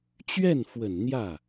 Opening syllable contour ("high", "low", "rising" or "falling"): falling